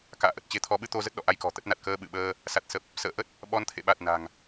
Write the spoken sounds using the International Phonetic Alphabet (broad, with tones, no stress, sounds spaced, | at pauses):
k a̰ː˧˨ ʔ ə˨˩ t̚ t͡ɕ e˧ t̪ʰ ɔ˨˦ ɓ ɨ˧ t̪ o˧ z ə˦˥ t̚ ɗ ɔ̰˧˨ ʔ a˧ j k ɔ̤˨˩ t̪ ə˦˥ t̚ n a˨˩ t̚ k əː˧ ɓ ɨ̰˧˨ ɓ əː˧ | s a˨˩ t̚ s ə˨˩ p̚ | s ə̰ː˧˨ ʔ ə˦˥ t̚ | ɓ ɔ˨˦ n t̪ʰ ḛ˧˨ ɓ a˨˩ t̚ n a̤˨˩ ŋ